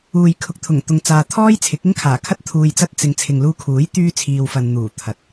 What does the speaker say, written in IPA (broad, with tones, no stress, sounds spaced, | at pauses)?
uː˨ j kʰ ʊ˨ k̚ t̪ʰ ʊ˨˩ ŋ t̪ ʊ˨ ŋ t͡s aː˨ t̪ʰ ɔː˥ j t͡sʰ ɪ˨˥ k̚ ɪ˥ ŋ kʰ aː˨˩ kʰ ɐ˥ t̚ t̪ʰ uː˧ j t͡s ɐ˥ t̚ t͡s ɪ˨˧ ŋ t͡sʰ ɪ˨ ŋ l uː˧ kʰ uː˨˥ j t̪ yː˥ t͡sʰ iː˧ w f ɐ˧ n n̪ uː˨˩ t̪ʰ ɐ˨ t̚